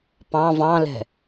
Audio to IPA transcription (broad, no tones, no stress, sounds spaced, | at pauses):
p ɑ̃ v ɑ̃ l ɛ̤